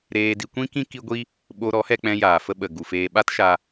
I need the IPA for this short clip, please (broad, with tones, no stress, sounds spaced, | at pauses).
ɾ eː˧ d i˧ kʷ ĩ˦ k ĩ˦ k i˦ ɡʷ i˦ | ɓ o˧ ɾ ɔ˨˦ h ɛ˧ k͡p ɛ̃˧ j aː˨ f ə˧ ɓ ə˨ ɡ u˨ f eː˧ ɓ a˦ t ʃ a˧